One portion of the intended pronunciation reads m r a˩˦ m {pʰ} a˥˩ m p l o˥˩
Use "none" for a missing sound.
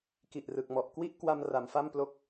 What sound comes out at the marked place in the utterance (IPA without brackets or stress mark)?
f